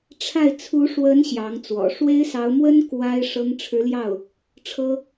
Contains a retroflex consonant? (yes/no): yes